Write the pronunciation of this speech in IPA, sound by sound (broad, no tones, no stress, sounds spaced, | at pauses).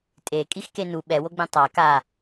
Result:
tʼ e kʼ i x k e n u ɓ ɛ w o ɡ͡b ẽ tˤ a k a